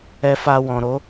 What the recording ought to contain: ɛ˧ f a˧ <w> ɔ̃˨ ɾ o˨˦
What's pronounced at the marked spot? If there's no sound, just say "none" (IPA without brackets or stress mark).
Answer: w